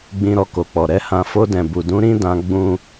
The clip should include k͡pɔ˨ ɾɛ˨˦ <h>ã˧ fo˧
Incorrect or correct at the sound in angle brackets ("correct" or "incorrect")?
correct